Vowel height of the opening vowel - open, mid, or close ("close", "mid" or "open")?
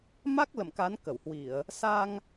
open